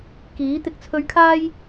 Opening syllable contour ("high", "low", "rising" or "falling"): rising